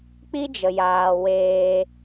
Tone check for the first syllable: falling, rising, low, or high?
high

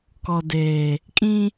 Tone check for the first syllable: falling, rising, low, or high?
low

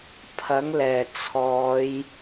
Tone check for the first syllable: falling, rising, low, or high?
rising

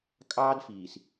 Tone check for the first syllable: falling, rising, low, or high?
high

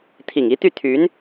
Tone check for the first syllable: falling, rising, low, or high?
low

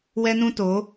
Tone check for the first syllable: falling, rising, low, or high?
high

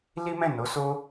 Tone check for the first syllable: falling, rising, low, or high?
high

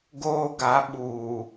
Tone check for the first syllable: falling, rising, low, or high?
high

